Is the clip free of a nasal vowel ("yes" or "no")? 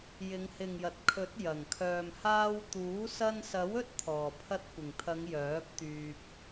yes